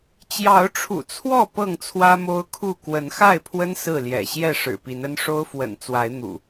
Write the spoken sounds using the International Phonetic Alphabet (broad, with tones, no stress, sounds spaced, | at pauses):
t͡ɕ j ɑ˨˦ ʊ̯ ʈ͡ʂʰ ṵ˨˩ t͡sʰ w ɔ˥˨ p ɤ˥˨ ŋ t͡sʰ w ä˦ m o˦ ʊ̯ kʰ u˥˨ k w ə˨˦ n x a˥˨ ɪ̯ pʰ w ə˦ n s ɹ̩˥˨ l j ɛ̰˨˩ ɕ j ɛ˥˨ ʂ ɻ̩˨˩ p i˨˦ n ə˦ n ʂ o˦ ʊ̯ f w ə̰˨˩ n t͡s w a˨˦ ɪ̯ n̪ ṵ˨˩